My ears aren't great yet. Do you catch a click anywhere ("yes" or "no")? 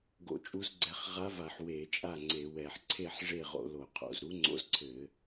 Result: yes